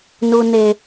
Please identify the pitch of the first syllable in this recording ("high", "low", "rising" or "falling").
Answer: low